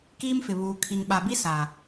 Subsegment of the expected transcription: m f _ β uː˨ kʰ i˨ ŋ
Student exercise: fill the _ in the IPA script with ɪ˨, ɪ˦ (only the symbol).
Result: ɪ˨